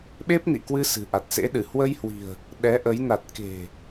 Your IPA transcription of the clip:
ɓ e˦˥ p̚ n ḭ˧˨ k w ɨ˧ s ɨ̤˨˩ ʔ a˨˩ t̚ s ḛ˧˥ ɗ ɨ˧˩ h w ə˧ j h w i̤˨˩ ə̯ | ɗ ɛ˨˦ ʔ ə˨˦ j n a˨˩ t̚ k e̤˨˩

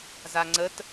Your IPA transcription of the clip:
z a ŋ͡ǀ ə t

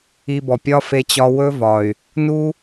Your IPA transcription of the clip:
i˧ b ɔ˨ pʲ ɒ˦ f e˧ t͡ɕ ɒ˧ w ɵ˦ v ɒ˨ y̯ | n u˦

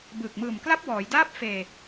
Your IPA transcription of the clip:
b ɯː˨˩ k̚ m ɯː˨˩ m k l a˦˥ p̚ w ɔː˩˦ j d aː˥˩ p̚ f eː˧

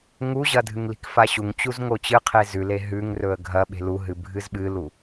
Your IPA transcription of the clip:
ŋ u ʑ ɐ dʱ ɨ ŋ l i̤ k f a ɕ u ŋ t͡ɕ u z ŋ o t͡ɕ ɨ qʰ e z ʉ l e ɦ ʉ ŋ r ɵ ə̯ ɡʱ ɐ ɓ e̤ l u ɦ ɨ bʱ ɨ z ɓ ɨ l u

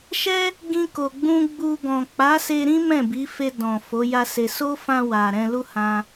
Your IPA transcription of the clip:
ʃ ɛ˦ | ɡ ĩ˧ k o˨ ɡ͡b ũ˧ ɡ͡b u˧ ɡ ɔ̃˨ k͡p a˨˦ s e˧ ɾ ĩ˦ m ɛ̃˦˨ b i˨˦ f e˧ d ɔ̃˨ f o˨˦ j a˦ s e˧ s o˦ f ã˧ w a˨ ɾ ɛ̃˧ l u˦ h ã˧

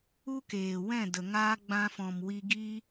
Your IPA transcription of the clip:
u˦ k eː˨ w ɛ̃˦˨ d ə˨ ŋ aː˧ ɡ͡b ã˧ f ɔ̃˨ m w i˧ ɡ iː˦

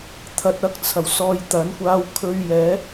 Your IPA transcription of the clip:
t̪ʰ ɐ˧ t̚ ɐ˧ k̚ t͡sʰ ɐ˨˩ w s ɔː˧ j t̪ ɐ˨˥ n kʷ aː˧ w kʰ ɵ˧ ɥ j ɛː˨˥

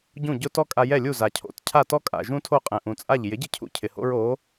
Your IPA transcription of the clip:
ɟ ũ˥˩ ɟ ʊ˥ t ɔ˥ kʼ a˧ j ɛ˥˩ lʲ u˥˩ z a˩ cʰ o̰˩˥ t cʰ a˥˩ t ɔ˥ kʼ a̰˩ ʒ ũ˥ tʰ o˥˩ qʼ ɛ̃˩ ʔ ũ˩ t͡sʼ a˥˩ ʎ j ɪ˩˥ ɟ ɪ˥˩ cʰ ṵ˧ cʰ ɪ˩ h o̰˥ ɹ o˩˥

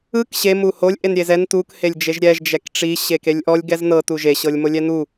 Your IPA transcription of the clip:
ɯ k ɕ e m u h o lʲ ʔ e n ɾʲ e z ɛ n t u k h e lʲ d͡ʒ e ʒ ɾʲ ɛ ʒ d͡ʒ ɛ k ʈ͡ʂ i ɕ e k e lʲ ʔ ɔ lʲ ɡ ɛ z n ɤ t u ʒ e ɕ ɤ lʲ m o lʲ ɛ n u

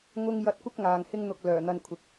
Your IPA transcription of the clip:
ŋ ʊ˥ ŋ j ɐ˧ t̚ kʷ ɪ˥ k̚ ŋ aː˨ ŋ h ɪ˥ ŋ n̪ ʊ˧ k̚ l œː˨˩ n̪ ɐ˧ n kʷʰ ɪ˨ k̚

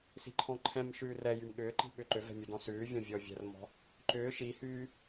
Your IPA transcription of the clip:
s i̤ ǃʰ ɔ̃ ǃʰ ɛ̃ m ʃ ʉː r ɛ j y m ɠ ʏː ǃ i̤ ɓ ʏ ǃ ʏ v ɛ̤ mʲ ʊ d ɔ̃ s ʉː vʲ ɔ̃ vʲ ɔ vʲ ɛ̤ r m ɔ̤ | ǃ ʏː ʃ i h yː

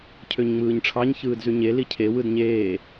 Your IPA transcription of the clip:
cʰ ø ɲ ŋ͡m ɯː ɲ ʈ͡ʂʰ ɑ ɲ ç ɯː d z y ɲ e l i cʰ e w ɯ d ɲ eː

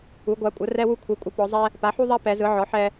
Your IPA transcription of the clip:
u˧˥ ɡʷ a˧˥ kʷʼ ə˧˥ r ɛ˥ w u˥ kʷʰ ɯ˧˥ kʷʼ ə˧˥ p ɔ˧˥ zˤ ɛ˥ | p a˧˥ ħ u˥ ðˤ a˥ p ɛ˧˥ z ɯ˧˥ ʕ ɔ˧˥ ħ ɛ˥

